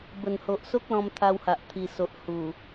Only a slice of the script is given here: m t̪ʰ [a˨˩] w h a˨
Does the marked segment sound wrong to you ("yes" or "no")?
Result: yes